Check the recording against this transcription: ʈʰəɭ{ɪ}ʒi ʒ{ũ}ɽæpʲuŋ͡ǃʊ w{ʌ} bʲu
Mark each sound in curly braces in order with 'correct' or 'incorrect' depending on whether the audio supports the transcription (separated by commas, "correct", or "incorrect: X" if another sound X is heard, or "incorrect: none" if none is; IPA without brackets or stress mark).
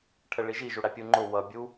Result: incorrect: i, incorrect: u, correct